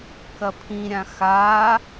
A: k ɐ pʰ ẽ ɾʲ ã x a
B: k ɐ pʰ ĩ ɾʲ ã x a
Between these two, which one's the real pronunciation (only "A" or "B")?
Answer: B